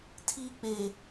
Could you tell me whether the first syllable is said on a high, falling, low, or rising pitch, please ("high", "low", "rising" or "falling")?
high